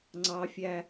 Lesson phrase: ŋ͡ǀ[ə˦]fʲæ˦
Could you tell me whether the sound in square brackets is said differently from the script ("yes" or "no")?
yes